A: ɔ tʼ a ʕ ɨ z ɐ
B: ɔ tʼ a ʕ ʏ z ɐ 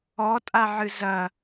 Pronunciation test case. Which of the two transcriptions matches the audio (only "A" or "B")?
A